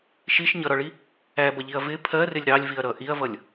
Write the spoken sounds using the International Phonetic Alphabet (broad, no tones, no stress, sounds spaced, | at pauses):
ʃ i ʃ ɲ ʌ ɾ ɒ ɭ i | æ b ʌ ʎ i ɐ̯ v ɪ pʰ ɜ r ɪ lʲ ɾ ɑ lʲ v i ɐ̯ ɾ ʌ ʔ i ɐ̯ v ʌ lʲ